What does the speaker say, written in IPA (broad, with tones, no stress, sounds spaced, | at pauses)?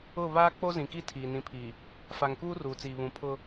ʊ˦˨ β aː˦ k͡p o˦ z ĩ˨ k i˦ tʰ iː˨ n ĩ˨ pʰ i˨ | f a˨ ŋ k uː˦ r uː˨ t͡s iː˨ β ũ˨˦ pʰ ʊ˦